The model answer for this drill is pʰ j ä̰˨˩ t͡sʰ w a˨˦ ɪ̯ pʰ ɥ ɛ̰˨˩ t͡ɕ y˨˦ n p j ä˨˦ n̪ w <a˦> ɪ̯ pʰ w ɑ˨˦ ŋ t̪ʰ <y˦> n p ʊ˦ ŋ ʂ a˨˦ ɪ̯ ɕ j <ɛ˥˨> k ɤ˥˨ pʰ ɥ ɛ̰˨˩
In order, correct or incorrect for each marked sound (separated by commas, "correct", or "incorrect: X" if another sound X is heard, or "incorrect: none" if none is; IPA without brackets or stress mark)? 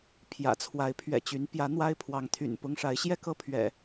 correct, incorrect: y̰˨˩, correct